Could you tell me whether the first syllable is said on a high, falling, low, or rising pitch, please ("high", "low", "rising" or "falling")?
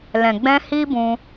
low